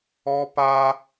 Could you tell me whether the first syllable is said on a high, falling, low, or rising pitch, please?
high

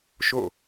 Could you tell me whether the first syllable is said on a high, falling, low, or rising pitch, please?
falling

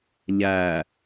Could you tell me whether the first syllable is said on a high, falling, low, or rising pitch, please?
low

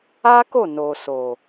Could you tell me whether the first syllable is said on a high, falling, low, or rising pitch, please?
high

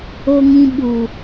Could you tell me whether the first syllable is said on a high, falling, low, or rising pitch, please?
low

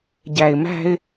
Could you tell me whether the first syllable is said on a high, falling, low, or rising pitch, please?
low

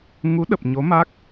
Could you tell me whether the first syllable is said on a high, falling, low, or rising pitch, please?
rising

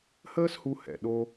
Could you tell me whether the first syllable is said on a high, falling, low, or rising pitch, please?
high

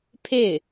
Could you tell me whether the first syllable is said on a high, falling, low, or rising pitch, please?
falling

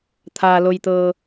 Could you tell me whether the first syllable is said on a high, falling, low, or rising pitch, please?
low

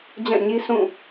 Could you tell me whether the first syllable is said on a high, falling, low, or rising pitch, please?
falling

